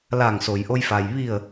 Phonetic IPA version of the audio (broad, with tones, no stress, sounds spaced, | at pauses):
l aː˧˩ ŋ s o˩ j ʔ o˧ j f a˩ j ʋ i˧˩ ə̯